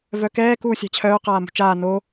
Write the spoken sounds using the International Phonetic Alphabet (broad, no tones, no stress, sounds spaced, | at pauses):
v œ k ɛː k uː sʲ a̤ t͡ɕʰ œː q aː m ṳ t͡ʃ aː n o